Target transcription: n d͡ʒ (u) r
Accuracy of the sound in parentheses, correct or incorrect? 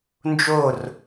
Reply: incorrect: o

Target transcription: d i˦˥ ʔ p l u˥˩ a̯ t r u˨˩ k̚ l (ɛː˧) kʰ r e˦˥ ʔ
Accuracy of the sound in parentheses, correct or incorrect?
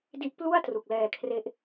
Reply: correct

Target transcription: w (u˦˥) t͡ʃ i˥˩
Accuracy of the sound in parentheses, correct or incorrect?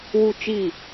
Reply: incorrect: u˥˩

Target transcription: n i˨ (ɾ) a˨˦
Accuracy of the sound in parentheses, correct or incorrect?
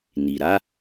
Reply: correct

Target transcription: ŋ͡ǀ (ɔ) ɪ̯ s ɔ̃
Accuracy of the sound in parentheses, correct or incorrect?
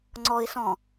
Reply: correct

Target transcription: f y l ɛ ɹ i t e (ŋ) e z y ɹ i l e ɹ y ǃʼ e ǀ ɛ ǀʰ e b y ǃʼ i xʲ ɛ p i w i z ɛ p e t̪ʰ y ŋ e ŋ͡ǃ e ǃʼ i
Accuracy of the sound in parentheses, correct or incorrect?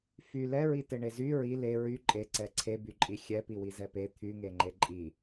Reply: incorrect: ɳ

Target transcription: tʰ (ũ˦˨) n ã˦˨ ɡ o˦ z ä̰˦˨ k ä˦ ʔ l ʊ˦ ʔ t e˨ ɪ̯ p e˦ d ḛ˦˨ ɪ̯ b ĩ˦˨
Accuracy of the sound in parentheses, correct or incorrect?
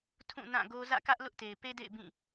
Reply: correct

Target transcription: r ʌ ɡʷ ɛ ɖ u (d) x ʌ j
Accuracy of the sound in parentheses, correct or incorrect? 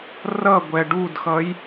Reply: correct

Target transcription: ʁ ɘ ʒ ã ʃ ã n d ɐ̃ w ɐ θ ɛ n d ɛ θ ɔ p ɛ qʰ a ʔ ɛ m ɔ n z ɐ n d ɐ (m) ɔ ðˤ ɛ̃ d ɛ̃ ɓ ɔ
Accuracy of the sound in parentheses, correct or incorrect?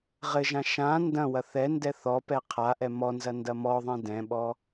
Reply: correct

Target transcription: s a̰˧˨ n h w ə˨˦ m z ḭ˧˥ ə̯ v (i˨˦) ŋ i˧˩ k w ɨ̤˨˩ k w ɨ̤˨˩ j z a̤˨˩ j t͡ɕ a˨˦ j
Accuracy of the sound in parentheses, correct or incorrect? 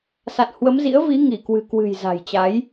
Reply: correct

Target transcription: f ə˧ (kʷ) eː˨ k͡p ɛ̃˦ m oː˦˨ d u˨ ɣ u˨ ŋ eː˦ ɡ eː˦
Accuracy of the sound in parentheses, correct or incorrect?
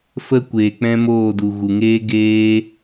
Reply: correct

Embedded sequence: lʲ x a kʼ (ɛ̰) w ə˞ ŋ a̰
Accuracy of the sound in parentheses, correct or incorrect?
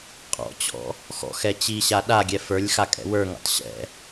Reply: correct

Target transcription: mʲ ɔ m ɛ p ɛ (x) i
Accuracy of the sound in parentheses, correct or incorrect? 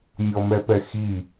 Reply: correct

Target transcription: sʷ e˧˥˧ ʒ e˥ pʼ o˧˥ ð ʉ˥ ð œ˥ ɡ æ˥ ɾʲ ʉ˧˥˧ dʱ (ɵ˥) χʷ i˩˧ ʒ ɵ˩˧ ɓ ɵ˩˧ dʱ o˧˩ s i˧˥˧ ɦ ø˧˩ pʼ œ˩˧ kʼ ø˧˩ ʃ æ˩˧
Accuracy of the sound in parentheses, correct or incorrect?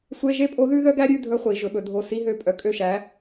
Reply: incorrect: ɵ˧˥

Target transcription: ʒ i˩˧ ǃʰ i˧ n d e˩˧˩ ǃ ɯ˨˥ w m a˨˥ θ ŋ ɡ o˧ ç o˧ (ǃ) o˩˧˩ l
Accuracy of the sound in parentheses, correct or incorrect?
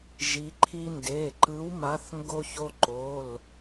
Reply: correct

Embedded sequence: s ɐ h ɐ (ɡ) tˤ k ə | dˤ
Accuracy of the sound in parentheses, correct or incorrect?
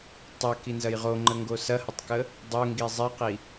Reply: incorrect: none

